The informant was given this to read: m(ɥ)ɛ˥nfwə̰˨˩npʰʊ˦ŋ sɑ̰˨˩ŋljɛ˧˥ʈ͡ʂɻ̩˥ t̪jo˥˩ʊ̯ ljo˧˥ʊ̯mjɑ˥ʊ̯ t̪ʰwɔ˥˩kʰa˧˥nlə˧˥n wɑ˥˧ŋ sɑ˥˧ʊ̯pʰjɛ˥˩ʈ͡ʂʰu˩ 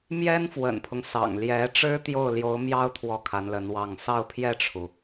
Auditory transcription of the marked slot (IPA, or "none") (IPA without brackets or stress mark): j